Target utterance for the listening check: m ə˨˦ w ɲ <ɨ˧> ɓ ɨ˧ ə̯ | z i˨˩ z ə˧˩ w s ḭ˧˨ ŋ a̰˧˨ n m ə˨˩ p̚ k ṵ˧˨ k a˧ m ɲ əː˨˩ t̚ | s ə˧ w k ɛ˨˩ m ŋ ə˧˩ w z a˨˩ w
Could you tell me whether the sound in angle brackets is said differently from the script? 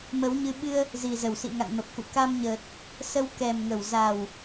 no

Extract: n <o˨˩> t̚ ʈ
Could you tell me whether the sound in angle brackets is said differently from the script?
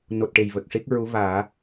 no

